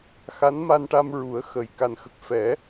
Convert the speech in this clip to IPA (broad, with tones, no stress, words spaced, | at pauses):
xa˧˥nma˧nʈa˧mɹu˨˩˦ə̯ xə˨˩j ka˨˩nxə˨˩k̚ fɛ˨˩˦